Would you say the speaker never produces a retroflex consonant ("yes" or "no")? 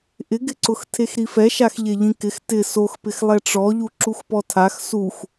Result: no